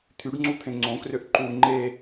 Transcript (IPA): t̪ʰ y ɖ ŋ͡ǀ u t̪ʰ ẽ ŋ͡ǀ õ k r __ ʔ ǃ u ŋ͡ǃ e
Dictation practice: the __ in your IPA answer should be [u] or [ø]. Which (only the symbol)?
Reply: ø